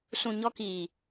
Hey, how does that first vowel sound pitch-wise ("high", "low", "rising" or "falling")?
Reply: low